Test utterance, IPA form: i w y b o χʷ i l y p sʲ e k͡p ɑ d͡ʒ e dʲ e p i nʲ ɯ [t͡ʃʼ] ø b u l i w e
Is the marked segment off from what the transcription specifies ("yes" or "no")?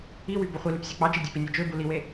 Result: yes